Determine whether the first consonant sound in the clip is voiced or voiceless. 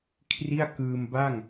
voiceless